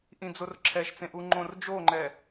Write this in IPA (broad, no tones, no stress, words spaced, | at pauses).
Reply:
ʔĩd͡zorǁʰɛʃt͡sẽ ʔuŋ͡ǃõrd͡ʒoŋ͡ǃɛ